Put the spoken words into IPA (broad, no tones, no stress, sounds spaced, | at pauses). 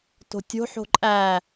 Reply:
t o̤ tʲ o̤ ħ o̤ ǃʼ æ